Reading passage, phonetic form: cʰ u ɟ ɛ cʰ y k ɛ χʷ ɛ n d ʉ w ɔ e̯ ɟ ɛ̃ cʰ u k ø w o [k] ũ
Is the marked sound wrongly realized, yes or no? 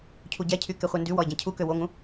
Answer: yes